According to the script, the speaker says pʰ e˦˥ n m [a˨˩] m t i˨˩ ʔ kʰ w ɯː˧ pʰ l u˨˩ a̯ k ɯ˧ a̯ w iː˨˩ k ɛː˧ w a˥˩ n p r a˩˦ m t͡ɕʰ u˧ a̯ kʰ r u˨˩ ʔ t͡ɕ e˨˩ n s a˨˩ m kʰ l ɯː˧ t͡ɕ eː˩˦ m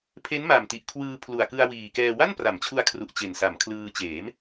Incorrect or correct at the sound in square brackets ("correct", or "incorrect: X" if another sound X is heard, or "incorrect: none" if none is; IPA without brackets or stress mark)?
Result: correct